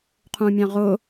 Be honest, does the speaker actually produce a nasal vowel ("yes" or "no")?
yes